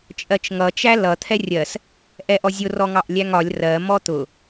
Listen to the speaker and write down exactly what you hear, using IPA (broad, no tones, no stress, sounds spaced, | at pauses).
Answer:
t͡ʃʼ ɜ t͡ʃ ŋ ʌ t͡ʃ æ l ʌ t̪ʰ ɛ rʲ ɜ s | ʔ ɛ ʔ ɔ zʲ ʊ r ɔ ŋ ɑ ʔ lʲ æ ŋ ɒ lʲ r ɜ m ɔ t̪ ʊ